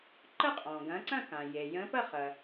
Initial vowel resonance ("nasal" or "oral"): oral